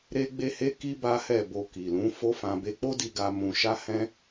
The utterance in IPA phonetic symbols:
ɾ e˦ ɡ͡b e˦ h e˦ k i˦ b a˦ h ɛ˦˨ b o˧ k i˨ l ũ˨˦ f o˦ f ã˧ b e˧ k͡p o˦ d i˧ ɡ a˧ m ũ˧ ʃ a˦ h ɛ̃˦

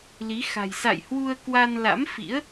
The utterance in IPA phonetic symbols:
l i˨˦ x a̤˨˩ j s a̰˧˨ j h w u˧ ə̯ k w a˧ n l a̰˧˥ m f ḭ˧˥ ə̯

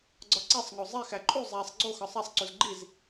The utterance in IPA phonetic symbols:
ɡ͡ǀ ɒ ǀ e sˤ ŋ o zˤ e x æ ǃʼ u zˤ æ sˤ ɡ͡ǀ o x ɒ sˤ æ sˤ ǀ u z ɡ͡ǃ i z

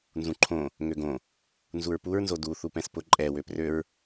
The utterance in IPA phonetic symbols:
n z ũ ǃʰ õ | ŋ ø ɡ õ | n z u ɹ p u ɹ n z o d u θ u p ɛ̃ s p ʊ ǃʼ ɛ w ø p r ø ɹ

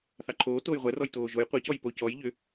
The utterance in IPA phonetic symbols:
θ ɑ ǃʰ oː t oː j ʁʷ ɛ r ɔ j t oː ʒ o j qʷ ɛ c ɔ j p o c ɔ j ʎ ʏ

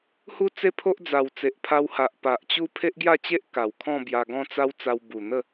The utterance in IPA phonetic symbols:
h u˦ t͡s e˦ pʰ o˦ ʔ d͡z a˨˩ w t͡s e˨ ʔ pʰ a˧ w h a˨ ʔ p a˨ ʔ t͡ɕ u˦ pʰ e˦ ʔ ɡ j a˥˧ t͡ɕ e˦ ʔ k a˨˩ w kʰ ɔ̃˥˧ b j a˧ ɡ ɔ̃˥˧ t͡s a˦ w t͡s a˧ w b u˨˩ n̪ ə˥˧

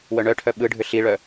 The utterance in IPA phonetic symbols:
w œ ɳ œ ʈʰ œ ɓ ɯ ɖʱ ʏ ɬ i ɭ œ

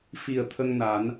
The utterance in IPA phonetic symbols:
f i˨˩ ə̯ t̪ʰ ə˧ ŋ n a˨˩˦ n

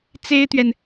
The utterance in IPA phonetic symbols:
t͡s e˥ ɪ̯ t̪ ɥ ɛ˨ n

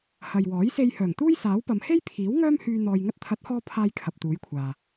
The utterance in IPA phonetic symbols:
h ɐ˨ j w ɔː˨˥ j s e˧ j h œː˨˩ ŋ t̪ uː˥ j s aː˨˥ w p ɐ˨˧ m h e˥ j pʰ iː˨˥ w ŋ œː˥ m h yː˧ n̪ ɔː˧ j ŋ ɐ˧ t̚ t̪ʰ ɐ˨˥ t̚ h ɔː˧ pʰ aː˥ j kʰ ɐ˨ p̚ t̪ uː˨˥ j kʷʰ aː˨

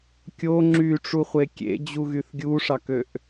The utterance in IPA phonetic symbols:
kʲ o ŋ͡ǁ y ʈ͡ʂ u χʷ e kʲ ḛ d͡ʑ u ɣ y θ ɡʲ u ʂ ɑ k ø ʔ

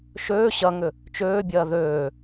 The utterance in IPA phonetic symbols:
ʃ øː ɕ ɐ ŋ ʏ | t͡ʃ øː bʲ ɐː ð øː

